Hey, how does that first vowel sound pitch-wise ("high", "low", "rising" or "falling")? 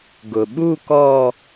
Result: low